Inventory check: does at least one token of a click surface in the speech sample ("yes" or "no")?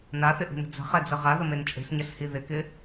no